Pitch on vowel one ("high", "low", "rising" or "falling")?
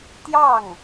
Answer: falling